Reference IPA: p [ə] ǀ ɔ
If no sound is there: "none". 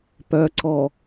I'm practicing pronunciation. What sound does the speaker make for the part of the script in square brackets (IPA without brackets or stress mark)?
œ